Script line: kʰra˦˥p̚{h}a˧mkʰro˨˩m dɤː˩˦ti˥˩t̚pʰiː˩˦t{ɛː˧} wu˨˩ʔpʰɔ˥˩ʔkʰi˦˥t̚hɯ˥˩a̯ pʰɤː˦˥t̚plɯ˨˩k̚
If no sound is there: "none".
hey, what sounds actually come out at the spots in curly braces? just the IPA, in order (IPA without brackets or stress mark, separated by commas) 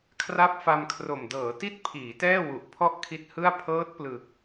f, ɛː˥˩